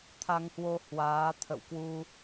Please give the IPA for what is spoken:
t̪ʰ a˧ ŋ h w o˧ h w aː˨˦ t̪ʰ ə̰˧˨ w k w u˧

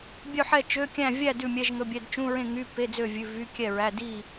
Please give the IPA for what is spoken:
bʲ œ˥˨ ħ ɛ˥˨ t͡ʃ ø˧˥˧ kʲ æ̃˥˨ vʲ æ˥˨ d ʉ˥˨ mʲ ɛ˧˥˧ ʒ ŋ ɵ˧˥˧ bʲ ɛ˧˥˧ d t͡ʃ ũ˧˥˧ ɹ ẽ˥˨ ŋ y˧˥˧ p e˧˥˧ d͡z ø˥˨ vʲ ʉ˧˥˧ v y˧˥˧ kʲ ɛ˥˨ ɹ æ˧˥˧ d i˥˨

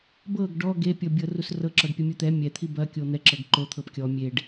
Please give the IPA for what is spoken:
b ɤ ɡ ɖ ɔ ɡ e pʲ ɤ bʲ ɤ r u s r ɤ ǁ ɒ ɖ pʲ ɐ mʲ u t̪ ɛ mʲ ɛ t̪ʰ i b ɐ kʲ o n̪ ɛ ǁ ɤ ɡ ǃ o t̪ʰ ɤ p kʲ ɔ mʲ e ɖ

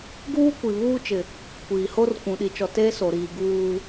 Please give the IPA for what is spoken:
ɡ uː˦ kʷ i˨ β uː˦ t͡ʃ ɪ˨ | kʷ iː˨ h o˦ r kʷ ũ˨ ɗ i˨ t͡ʃ ɔ˨ t eː˦ s o˨ ɾ iː˨ ɡ uː˦

